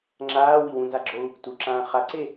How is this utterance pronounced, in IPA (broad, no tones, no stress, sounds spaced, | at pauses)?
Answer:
ŋ͡ǁ aː w i w ũ n z a ɡ͡ǁ o u̯ | t u ǁ ãː χ a ǀ e